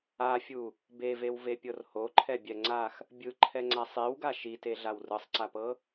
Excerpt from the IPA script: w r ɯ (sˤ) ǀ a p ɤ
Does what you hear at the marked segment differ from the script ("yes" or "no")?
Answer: no